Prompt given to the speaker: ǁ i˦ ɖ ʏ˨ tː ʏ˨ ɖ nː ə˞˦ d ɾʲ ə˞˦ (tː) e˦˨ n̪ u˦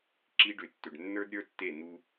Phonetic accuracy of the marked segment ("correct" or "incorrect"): correct